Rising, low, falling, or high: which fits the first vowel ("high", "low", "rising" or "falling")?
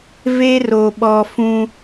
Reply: high